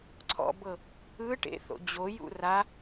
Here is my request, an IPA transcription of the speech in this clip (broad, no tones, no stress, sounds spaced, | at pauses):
ǀʰ ɔ̰ b ɤ | ɯ ʈ ḛ θ o̰ d͡ʑ o j ṵ r a